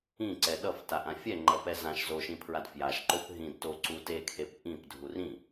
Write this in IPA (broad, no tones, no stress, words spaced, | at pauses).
ĩǀɛ ɗʌftaʔã fʲɛŋ͡ǃʌpɛ zãʃ zoʃĩpʰɹad fjaʃǃop ɦĩd toǀu tekʰep ʔĩpdʱur ĩ